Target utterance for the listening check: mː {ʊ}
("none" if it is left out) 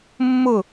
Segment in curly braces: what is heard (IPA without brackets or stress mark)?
ʊ